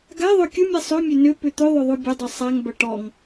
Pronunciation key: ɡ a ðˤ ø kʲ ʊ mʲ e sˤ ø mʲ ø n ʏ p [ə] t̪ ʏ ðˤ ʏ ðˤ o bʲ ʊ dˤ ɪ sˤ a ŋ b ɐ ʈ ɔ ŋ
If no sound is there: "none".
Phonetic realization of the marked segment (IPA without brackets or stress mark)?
ʏ